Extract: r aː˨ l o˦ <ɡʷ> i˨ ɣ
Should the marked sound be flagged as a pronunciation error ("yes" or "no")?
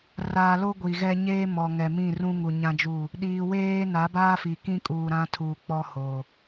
no